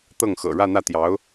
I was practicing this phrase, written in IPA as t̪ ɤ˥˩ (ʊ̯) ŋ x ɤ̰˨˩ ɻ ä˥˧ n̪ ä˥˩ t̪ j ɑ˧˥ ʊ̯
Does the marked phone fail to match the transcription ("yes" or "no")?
yes